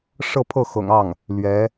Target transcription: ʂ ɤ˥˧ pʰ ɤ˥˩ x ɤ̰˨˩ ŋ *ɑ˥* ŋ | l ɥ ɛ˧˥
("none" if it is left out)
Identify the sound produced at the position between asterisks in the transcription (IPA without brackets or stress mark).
ɑ˥˩